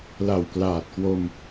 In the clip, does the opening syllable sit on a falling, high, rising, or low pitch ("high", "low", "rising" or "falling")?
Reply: low